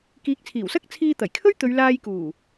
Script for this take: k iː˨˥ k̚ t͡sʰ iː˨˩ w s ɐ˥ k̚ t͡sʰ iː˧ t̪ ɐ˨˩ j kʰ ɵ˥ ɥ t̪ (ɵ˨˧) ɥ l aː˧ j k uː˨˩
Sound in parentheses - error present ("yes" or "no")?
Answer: no